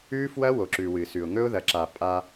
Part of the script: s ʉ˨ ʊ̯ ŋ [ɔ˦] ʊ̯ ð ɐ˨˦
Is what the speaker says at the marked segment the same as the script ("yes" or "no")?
no